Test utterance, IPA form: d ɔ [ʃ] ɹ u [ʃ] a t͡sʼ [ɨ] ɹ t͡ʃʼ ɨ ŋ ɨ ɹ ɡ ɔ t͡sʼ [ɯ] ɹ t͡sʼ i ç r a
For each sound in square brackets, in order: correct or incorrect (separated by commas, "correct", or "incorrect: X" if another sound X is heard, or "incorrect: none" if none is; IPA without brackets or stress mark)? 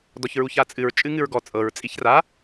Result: incorrect: ç, incorrect: ç, correct, incorrect: ɤ